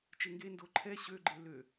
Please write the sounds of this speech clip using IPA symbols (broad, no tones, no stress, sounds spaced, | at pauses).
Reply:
t͡ʃ e ŋ ɡ e n d o ǃʰ ɛ ɕ ø ɡ͡ǃ e l ø